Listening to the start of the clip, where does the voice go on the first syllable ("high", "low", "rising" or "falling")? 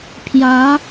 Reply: rising